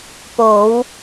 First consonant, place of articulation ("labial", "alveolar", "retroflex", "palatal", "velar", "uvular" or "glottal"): labial